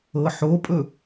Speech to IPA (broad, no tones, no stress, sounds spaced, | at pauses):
ɤ ħ o pʼ ɵ